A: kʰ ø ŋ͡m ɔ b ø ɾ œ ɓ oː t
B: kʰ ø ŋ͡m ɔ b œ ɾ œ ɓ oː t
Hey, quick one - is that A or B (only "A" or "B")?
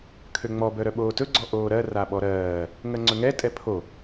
B